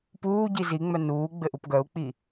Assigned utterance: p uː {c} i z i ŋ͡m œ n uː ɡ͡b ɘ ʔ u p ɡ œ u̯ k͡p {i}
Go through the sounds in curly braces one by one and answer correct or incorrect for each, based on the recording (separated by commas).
incorrect, correct